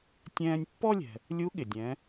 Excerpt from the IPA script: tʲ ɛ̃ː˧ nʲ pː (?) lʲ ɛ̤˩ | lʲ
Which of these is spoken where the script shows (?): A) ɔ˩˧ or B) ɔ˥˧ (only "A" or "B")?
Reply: B